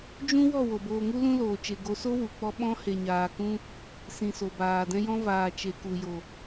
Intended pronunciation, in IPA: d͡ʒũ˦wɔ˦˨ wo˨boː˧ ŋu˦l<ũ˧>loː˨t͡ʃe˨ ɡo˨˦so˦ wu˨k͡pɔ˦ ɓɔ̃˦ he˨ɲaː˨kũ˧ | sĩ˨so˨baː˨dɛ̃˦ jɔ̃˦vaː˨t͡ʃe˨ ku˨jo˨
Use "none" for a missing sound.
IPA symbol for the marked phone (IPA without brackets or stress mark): ũ˦